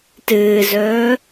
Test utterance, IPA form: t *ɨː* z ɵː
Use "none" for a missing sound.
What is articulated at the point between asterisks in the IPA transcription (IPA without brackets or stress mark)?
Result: ɨː